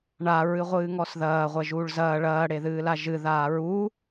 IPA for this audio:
ɳ a ɹ ɨ ʁʷ ɨː ŋ ɔ s ð ɐː ʁʷ ɛ ʒ uː ɭ z ɐː ɭ ɐː ɽ e ð ɨː l a ʒ ɨ ð aː ɹ u

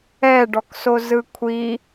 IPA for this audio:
ɛ ɖ ɔ k s o z ɯ kʷʰ i

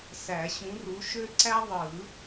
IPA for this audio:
s æ˨˩˦ ɕ ũ˨˦ r u˨˦ ʃ ø˦ ǀ æ˦ ðˤ ɯ˨˩˦

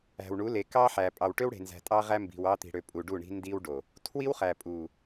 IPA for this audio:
æ̤˨ w ɳ u˨˦ l e˨ k ɑ˦ ħ æ˨ pʼ ɑ˨ w ʈ ø˦ w ɽ e̤˨ n z æ̤˨ tʼ ɑ˦ ʁ æ˦ m b i̤˨ w ɑ˦ t̪ i̤˨ ɽ ø˨ pʼ u˨ ɖ u˦˨ ɳ i̤˦ n d i˦ w ɖ o˨ | tʰ w i˦ w χ æ˨ pʼ u˨

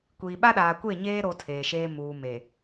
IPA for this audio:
kʷ iː˨ ɓ a˦ ɗ aː˨ kʷ e˦˨ ɲ eː˦ ɾ o˦ tʰ eː˨ ʃ eː˦ m uː˨ m e˨

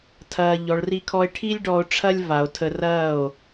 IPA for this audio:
tʰ ɐː˧ ʎ ɔ˨ ɭ r i˧ kʰ ɔ˧ e̯ ʈʰ i˦ lʲ ɖ ɔ˧ o̯ ʈ͡ʂʰ ɐ˦ lʲ v a˨ o̯ tʰ ə˧ r ɐː˦˨ o̯

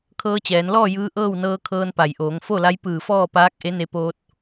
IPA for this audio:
kʰ ɤː˧ t͡ɕ ɛː˩˧ n l ɔː˥˨ j ɯː˧˥ ʔ ɤː˥˨ w n ɤː˧ kʰ ɤː˧ n p a˩ j ʔ oː˩˧ ŋ f o˥˨ l a˧˥ j p ɯː˧˩ f ɔː˥˨ p aː˧˥ k̚ ʔ e˧˥ n e˧ p oː˧ t̚

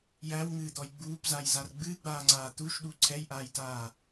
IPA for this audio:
j æ w ŋ ɨː d̪ ɔ j ɡ͡b uː p z a j z a r ɡ͡b ɨː ɡ͡b aː ŋ͡ǀ aː t̪ u ʃ ɗ u ǀʰ ɛ j ʔ aː j t aː

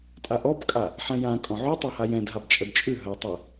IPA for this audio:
tʼ a ʔ ɔ b kʼ a | ħ ɛ̃ j ã kʼ ɔ̃ ʕ ʉ tˤ a h a j ɛ̃ d ɦ a b t͡ʃʼ ə d t͡ʃʼ ʉ ɦ ə tˤ ɨ

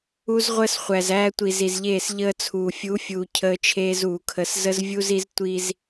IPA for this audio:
u˦ z ʁʷ əː˦ s χʷ æ˨ z æː˦ tʷ i˨ z i˨ z ʎ eː˦˨ s ʎ əː˦ t͡sʰ uː˨ fʲ u˨˦ fʲ uː˨ cʰ əː˦ t͡ʃʰ eː˦ z uː˨ kʰ ə˨˦ s z ə˦ z vʲ u˦ z i˦ z tʷ i˦ z

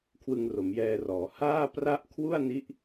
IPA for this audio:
kʰ w ɯ˧ ŋ r o˩˦ m j ɛː˧ r ɔː˩˦ h aː˥˩ p r a˦˥ ʔ kʰ w u˥˩ a̯ n i˦˥ ʔ

